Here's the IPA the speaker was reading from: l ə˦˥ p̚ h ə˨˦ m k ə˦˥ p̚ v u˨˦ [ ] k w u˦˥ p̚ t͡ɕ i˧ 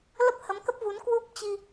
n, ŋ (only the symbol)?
n